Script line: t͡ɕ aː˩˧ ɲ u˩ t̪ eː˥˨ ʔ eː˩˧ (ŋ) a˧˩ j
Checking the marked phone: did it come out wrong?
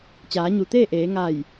no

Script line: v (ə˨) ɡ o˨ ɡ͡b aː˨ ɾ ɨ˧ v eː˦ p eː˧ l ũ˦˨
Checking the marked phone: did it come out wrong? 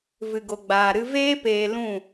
yes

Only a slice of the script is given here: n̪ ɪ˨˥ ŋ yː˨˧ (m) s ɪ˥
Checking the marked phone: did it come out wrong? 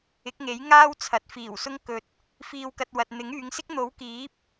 yes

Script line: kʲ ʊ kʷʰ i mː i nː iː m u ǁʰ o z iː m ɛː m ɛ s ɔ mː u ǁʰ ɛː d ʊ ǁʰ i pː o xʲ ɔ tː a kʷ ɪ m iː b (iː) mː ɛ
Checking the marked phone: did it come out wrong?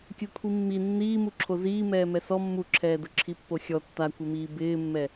yes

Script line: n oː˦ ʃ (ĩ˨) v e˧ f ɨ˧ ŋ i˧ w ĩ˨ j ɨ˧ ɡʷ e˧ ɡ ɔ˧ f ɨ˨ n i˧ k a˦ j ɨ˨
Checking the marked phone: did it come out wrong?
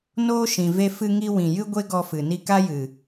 no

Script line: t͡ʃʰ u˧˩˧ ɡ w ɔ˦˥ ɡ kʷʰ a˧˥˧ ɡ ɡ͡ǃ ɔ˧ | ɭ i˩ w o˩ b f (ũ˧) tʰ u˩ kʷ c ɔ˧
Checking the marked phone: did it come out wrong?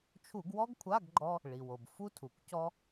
yes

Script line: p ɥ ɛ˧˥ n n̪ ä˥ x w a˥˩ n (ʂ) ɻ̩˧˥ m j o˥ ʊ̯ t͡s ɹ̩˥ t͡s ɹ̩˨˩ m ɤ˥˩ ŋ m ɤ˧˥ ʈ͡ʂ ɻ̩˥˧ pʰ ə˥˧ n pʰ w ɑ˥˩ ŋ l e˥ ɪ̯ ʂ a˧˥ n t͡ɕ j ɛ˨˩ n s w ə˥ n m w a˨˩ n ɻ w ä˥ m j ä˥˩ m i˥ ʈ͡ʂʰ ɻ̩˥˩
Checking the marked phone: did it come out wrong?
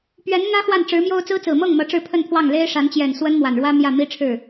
yes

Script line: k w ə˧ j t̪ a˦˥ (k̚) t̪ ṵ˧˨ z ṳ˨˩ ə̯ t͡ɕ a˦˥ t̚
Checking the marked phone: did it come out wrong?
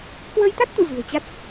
yes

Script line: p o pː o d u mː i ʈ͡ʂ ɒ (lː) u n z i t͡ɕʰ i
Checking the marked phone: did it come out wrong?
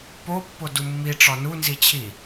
yes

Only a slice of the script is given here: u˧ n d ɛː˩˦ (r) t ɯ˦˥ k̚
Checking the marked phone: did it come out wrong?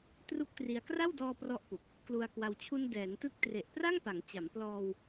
yes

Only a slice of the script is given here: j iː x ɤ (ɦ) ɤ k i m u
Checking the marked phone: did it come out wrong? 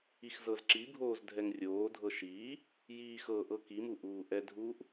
yes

